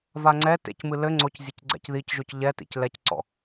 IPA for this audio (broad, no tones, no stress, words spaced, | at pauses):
vaŋ͡ǀɛ tḛcmɨ lɘ ŋ͡ǀoc zʲɘcɡ͡ǀɛ̰c ðicʒoc ʎɛtḭc lɛcǀɔ̰